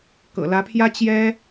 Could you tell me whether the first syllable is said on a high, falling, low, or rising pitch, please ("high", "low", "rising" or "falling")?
low